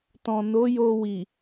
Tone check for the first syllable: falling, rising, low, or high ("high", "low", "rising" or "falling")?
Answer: low